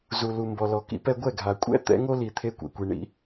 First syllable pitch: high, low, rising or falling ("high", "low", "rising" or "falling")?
low